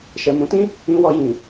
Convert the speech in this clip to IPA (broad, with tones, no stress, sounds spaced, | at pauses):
ʃ ɛ˨ m ũ˨˦ t ĩ˦ | ĩ˧ w ɔ˧ j ĩ˨